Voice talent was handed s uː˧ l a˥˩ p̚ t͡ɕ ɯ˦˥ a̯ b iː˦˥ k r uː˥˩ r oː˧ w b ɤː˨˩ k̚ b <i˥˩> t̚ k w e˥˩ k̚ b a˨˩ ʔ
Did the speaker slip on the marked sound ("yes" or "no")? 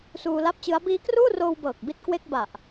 yes